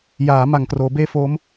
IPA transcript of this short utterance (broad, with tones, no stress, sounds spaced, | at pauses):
j aː˩˦ m a˨˩ ŋ k r oː˩˦ b eː˥˩ f o˦˥ m